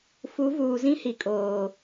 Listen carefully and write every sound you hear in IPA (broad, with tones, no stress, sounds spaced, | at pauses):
f u˨˦ v uː˨ z ĩ˦ h i˨ kʼ oː˨